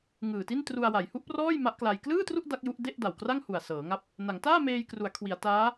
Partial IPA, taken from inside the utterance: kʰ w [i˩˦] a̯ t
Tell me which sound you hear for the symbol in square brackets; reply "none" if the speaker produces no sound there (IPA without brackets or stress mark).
i˩˦